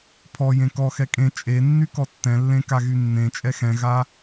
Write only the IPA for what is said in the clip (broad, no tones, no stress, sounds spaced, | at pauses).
pʰ ɔ j ẽ k ɔ x ɛ kʼ ẽ t͡ʃʼ e nː y k ɔ tː ɛ̃ lː ẽ k a ɣ y nː ẽ t͡ʃʼ ɛ x ɛ̃ ɣ a